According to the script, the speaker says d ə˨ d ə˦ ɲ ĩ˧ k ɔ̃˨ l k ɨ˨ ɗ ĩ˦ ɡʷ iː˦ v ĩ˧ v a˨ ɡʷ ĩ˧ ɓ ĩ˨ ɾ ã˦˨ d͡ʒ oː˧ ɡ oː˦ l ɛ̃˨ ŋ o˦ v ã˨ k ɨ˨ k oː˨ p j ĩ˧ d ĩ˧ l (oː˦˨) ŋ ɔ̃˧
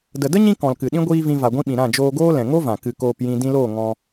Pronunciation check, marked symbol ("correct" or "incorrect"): correct